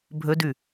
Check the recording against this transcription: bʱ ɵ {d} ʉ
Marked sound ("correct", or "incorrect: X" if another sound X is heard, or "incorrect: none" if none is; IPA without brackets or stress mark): correct